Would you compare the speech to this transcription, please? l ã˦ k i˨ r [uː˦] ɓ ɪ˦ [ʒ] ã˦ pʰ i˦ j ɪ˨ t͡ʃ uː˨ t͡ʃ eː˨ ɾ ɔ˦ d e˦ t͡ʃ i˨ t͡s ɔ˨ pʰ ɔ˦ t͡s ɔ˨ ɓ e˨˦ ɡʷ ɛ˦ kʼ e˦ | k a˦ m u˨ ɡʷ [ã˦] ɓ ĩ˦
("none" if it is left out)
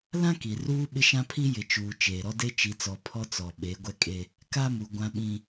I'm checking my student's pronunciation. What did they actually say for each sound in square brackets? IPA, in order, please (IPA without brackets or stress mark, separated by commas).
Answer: uː˦, ʃ, ã˦